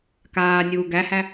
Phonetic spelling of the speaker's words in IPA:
k aː nʲ uː ɡ æ h æ

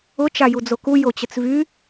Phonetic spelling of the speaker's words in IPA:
ʊ t͡ʃ a j u d͡z o k u j o t͡ɕ ə t͡s v y

